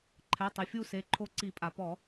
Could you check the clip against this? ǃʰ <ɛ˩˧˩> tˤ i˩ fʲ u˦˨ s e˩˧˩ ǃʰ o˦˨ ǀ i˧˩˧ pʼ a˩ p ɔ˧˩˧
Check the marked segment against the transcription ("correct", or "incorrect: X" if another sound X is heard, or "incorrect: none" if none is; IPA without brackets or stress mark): correct